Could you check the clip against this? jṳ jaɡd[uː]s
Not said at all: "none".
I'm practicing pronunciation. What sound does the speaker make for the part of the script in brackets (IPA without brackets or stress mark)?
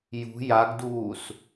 uː